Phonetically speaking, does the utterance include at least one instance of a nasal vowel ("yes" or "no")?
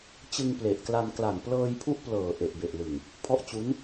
no